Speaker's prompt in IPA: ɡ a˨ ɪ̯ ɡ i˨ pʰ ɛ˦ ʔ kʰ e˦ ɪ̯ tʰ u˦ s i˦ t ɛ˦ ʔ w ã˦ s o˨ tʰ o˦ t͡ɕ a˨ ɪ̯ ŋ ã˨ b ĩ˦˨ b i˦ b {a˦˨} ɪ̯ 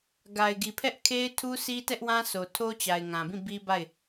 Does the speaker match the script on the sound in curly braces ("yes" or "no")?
yes